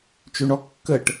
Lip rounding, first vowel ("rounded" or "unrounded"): rounded